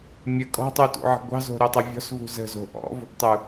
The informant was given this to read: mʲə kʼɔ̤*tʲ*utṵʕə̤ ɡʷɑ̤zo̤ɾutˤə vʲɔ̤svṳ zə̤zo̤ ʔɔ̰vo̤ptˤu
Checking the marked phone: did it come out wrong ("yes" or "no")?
yes